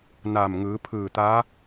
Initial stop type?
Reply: aspirated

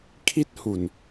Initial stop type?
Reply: aspirated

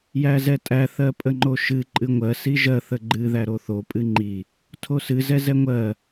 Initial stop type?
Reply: ejective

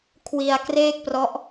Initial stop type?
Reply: aspirated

